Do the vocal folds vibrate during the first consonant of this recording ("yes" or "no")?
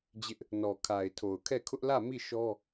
yes